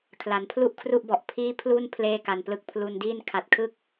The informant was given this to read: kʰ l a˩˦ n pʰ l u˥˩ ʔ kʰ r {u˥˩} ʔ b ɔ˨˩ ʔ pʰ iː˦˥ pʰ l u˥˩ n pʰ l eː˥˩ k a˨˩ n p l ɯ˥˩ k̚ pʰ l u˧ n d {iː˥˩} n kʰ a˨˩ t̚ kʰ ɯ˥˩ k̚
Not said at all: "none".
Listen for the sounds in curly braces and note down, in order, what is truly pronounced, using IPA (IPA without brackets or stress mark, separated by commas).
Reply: u˥˩, iː˥˩